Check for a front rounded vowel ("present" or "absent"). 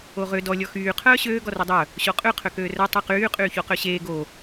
present